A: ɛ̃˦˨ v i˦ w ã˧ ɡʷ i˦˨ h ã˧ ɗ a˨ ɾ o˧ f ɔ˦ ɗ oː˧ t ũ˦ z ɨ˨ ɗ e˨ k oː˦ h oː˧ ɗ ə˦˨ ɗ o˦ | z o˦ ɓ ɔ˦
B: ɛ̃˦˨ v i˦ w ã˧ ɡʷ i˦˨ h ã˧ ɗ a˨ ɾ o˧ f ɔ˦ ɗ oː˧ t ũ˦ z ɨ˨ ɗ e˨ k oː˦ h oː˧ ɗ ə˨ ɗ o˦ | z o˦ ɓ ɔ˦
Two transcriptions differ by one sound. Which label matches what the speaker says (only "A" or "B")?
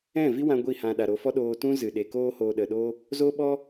B